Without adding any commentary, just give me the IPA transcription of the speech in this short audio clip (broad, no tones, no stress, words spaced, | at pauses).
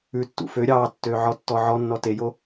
ʉtːṵ fø ɾʲɑtːø ʕɔtːɔʕɔnːɔ tejo